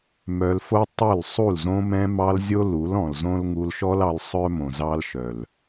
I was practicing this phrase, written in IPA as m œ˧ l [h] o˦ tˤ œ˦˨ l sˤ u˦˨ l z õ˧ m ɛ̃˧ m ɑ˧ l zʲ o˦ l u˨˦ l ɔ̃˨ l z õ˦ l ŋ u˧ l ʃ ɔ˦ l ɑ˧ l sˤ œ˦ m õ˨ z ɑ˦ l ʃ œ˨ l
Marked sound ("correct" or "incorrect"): incorrect